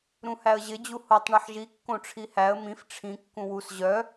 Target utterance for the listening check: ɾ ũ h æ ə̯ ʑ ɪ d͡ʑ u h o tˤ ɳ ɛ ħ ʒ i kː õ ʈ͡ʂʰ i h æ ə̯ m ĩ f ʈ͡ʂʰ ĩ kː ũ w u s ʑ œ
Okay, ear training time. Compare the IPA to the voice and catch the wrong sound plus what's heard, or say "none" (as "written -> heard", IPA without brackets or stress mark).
none